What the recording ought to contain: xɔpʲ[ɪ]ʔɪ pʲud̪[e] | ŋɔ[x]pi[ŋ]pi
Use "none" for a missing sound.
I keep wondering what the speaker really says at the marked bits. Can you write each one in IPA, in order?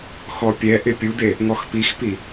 ɛ, e, x, x

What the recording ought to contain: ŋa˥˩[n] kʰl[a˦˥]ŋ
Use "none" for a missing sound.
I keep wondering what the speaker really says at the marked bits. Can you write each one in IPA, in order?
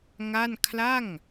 n, a˥˩

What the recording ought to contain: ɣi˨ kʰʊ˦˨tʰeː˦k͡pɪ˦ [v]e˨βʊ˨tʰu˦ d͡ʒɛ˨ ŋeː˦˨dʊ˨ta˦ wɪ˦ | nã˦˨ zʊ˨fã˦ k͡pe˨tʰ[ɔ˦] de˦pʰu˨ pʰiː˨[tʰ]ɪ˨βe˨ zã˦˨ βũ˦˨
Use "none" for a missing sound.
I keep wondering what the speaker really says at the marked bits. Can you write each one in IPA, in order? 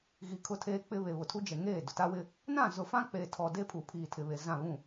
β, ɔ˨, tʰ

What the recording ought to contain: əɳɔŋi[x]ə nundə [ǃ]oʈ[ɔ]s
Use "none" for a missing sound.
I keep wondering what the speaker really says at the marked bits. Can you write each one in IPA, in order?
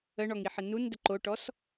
ħ, ǃ, ɔ

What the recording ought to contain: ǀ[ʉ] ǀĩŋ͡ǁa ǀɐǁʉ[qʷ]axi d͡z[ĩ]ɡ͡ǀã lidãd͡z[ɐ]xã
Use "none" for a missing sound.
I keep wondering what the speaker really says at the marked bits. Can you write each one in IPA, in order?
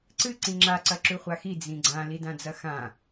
ɨ, χʷ, ĩ, ɐ

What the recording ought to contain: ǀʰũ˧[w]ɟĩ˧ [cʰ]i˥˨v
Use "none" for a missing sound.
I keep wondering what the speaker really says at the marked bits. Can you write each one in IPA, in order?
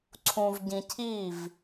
v, cʰ

